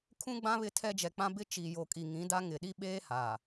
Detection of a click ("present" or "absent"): absent